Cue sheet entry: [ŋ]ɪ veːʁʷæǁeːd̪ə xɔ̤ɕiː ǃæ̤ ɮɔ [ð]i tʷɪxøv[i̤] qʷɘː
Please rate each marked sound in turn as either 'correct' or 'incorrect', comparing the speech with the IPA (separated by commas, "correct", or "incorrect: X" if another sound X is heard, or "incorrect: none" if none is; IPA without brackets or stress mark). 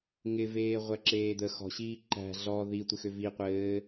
correct, correct, incorrect: i